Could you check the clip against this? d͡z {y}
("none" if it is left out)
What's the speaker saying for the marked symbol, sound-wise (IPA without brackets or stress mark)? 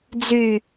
y